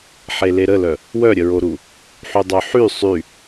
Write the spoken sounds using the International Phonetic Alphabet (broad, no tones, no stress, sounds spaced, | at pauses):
ħ e l e ɾ ə l œ | w œ ɾʲ ə ɹ o ɾ u | ħ y dˤ œ ħ y sˤ y